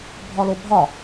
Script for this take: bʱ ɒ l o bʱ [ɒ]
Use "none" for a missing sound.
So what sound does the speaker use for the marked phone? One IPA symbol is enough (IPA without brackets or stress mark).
ɒ